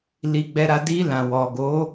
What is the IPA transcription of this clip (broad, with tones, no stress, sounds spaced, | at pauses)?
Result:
l i˧ ɡ͡b ɛ˧ ɾ a˧ d i˧ l ã˨ w ɔ˨ ɡ o˨˦